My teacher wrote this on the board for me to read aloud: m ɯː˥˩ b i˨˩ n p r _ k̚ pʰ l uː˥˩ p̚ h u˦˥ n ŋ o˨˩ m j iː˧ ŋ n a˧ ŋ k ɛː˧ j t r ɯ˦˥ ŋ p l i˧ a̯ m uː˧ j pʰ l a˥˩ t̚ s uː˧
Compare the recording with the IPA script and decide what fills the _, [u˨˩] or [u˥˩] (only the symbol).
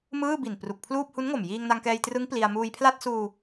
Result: u˨˩